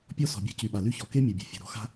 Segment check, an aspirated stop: absent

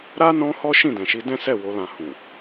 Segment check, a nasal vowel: present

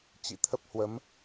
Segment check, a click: absent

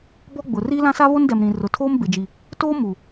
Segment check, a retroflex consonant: absent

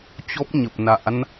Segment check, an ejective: absent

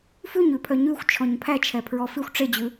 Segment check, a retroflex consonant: present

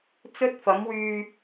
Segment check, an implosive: absent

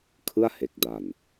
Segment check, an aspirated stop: present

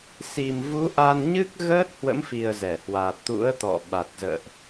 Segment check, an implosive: present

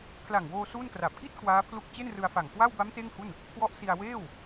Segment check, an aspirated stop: present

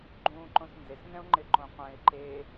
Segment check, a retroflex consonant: absent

